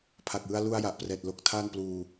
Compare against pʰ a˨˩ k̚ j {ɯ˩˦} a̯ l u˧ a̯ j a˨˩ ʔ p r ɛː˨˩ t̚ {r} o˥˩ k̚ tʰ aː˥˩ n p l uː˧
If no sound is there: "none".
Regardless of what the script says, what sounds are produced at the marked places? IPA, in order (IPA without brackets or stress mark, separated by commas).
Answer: ɯ˧, l